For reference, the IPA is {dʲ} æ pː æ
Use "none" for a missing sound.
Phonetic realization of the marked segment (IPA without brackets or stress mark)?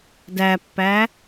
d